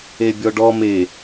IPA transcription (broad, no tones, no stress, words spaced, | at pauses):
ebʲɔɖɔ me